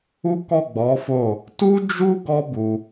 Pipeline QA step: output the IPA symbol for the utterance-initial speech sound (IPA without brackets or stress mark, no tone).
u